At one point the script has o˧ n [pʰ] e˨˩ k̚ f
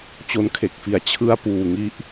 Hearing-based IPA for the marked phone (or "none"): kʰ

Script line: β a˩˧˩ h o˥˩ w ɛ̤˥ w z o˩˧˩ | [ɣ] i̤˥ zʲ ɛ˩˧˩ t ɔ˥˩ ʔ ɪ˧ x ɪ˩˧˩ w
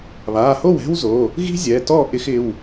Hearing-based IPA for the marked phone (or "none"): ɣ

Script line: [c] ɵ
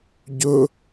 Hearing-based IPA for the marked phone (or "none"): ɟ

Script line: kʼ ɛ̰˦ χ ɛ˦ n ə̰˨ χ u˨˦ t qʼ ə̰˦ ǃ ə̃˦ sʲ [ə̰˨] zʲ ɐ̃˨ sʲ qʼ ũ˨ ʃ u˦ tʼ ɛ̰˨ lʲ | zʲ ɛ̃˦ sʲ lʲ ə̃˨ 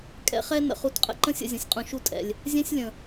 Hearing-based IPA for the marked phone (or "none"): ə̰˨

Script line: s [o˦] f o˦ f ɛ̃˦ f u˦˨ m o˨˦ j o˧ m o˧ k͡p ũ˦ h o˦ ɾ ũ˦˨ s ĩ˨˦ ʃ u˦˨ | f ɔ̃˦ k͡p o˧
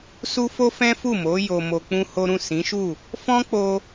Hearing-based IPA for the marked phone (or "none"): u˦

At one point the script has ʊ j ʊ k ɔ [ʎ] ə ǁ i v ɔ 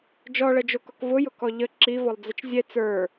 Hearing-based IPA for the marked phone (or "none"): ʎ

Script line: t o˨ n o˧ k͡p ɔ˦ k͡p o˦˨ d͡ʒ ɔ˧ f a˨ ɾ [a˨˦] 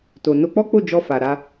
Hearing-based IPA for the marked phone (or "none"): a˧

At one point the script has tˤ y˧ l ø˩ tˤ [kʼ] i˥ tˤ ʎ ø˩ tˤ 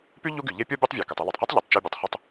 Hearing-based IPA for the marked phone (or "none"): q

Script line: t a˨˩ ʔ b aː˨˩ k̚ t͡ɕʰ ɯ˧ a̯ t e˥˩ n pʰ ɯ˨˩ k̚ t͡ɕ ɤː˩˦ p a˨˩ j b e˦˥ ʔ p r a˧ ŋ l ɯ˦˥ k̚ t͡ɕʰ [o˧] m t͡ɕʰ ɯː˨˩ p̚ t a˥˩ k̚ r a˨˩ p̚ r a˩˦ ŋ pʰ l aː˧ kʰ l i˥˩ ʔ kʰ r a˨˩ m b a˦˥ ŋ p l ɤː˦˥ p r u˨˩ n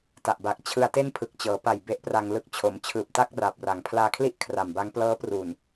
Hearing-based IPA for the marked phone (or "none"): o˩˦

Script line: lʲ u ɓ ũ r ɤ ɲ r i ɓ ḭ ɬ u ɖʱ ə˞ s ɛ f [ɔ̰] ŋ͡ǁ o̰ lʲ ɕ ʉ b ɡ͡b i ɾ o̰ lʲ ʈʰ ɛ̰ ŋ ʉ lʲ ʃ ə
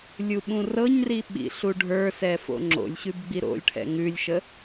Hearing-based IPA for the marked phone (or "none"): o̰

